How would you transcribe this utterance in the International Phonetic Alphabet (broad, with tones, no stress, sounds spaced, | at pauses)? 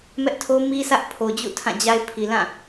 m ɛ˦ ʔ tʰ o˦ m i˦ sʰ ä˦ ʔ pʰ o˨ d͡ʑ ṵ˦˨ tʰ ã˦˨ d͡ʑ a˦ ɪ̯ pʰ i˨ l ã˦˨